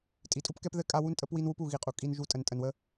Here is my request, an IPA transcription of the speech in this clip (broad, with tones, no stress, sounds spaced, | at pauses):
tʼ i˨ tʼ u˦ p k ɛ˦ p ð ɘ˦ kʼ a˦ w u˦ n tʼ ə˦ p w i˦ n w u˦ p u˨ ɣ i˨ qʼ u˨ kʼ i˦ n ʒ u˦ tʼ ə˨ n tʼ ə˨ n w ə˦